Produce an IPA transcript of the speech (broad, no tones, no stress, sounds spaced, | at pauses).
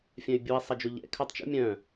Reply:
fʲ œ̃ y̯ bʲ u i̯ sˤ ɐ d͡ʒ o ʎ ɛ̰ kʰ œ tˤ t͡ʃ ṵ mʲ œ̃